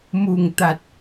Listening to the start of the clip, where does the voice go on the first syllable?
low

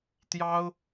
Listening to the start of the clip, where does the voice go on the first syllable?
high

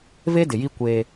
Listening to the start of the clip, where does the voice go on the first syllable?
high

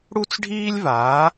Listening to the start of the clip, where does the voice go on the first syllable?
high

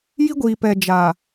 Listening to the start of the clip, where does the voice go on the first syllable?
high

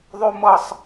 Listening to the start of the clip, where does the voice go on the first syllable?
high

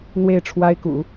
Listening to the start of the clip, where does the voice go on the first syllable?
falling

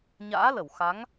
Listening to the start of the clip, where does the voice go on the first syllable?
rising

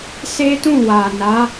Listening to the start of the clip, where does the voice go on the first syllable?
high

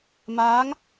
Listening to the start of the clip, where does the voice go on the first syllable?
rising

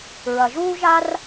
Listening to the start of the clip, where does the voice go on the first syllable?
low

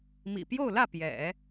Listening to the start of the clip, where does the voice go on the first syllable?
low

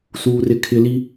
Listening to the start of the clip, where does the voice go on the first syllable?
high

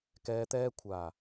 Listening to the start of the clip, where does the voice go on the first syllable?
low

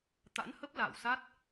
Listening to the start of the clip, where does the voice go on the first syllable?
rising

